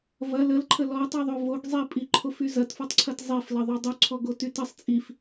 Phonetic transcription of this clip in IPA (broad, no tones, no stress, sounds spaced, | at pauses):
v ɐ l ə l ǃʰ ə l ɔ tˤ y ðˤ o v o ɡ zˤ i pʼ i ǃʰ o f y z ɐ t f ɔ tˤ ǀʰ ɐ t zˤ e f l ɐ ðˤ o dˤ o ǀʰ ɔ ɡ o t y t ə sˤ t͡sʼ i f